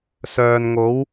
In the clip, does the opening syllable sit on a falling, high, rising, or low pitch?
low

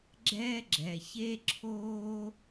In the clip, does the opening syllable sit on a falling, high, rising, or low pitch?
high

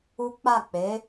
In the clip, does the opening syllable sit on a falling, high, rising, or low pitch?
high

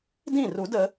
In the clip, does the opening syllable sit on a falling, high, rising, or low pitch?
falling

